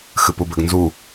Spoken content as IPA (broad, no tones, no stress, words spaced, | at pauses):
xɨpubɘɡnzu